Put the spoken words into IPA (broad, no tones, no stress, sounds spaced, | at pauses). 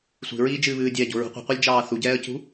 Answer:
sʷ i̤ ɹ iː d͡ʒ ɨː β ɨː dʲ ɛː ɟ o̤ ɹ ṳ qʷ i̤ qʷ ɛ lʲ d͡ʒ ɑː θ u ɟ ɛː ə̯ c ṳ